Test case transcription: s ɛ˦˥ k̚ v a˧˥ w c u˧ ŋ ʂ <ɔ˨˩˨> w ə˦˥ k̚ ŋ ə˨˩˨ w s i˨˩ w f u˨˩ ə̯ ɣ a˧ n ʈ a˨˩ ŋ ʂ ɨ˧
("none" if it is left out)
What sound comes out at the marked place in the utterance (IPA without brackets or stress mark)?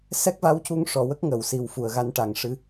ɔ˨˩˨